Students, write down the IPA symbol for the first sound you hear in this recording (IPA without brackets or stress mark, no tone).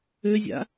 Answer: ø